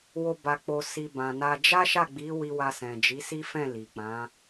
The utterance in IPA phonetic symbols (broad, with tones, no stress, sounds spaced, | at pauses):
w o˧ b a˨ k͡p o˨ s i˨ b ã˨ n a˧ d͡ʒ a˦ ʃ a˦˨ ɡ͡b i˨˦ w i˧ w a˧ s ɛ̃˨ d͡ʒ i˨˦ s i˦ f ɛ̃˦˨ l i˨ k͡p ã˨˦